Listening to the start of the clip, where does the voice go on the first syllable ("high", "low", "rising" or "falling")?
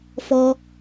high